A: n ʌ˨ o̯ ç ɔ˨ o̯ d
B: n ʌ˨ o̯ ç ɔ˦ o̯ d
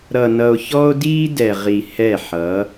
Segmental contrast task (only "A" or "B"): B